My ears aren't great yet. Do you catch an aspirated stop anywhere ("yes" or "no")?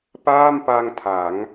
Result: yes